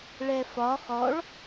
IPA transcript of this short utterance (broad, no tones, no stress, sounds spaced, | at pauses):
ɭ ɛ f ɒ χ ɔ ɭ